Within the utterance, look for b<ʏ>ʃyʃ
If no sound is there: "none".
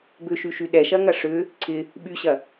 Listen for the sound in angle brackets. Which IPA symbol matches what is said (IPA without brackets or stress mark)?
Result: ʏ